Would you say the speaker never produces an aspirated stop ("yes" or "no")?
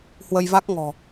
yes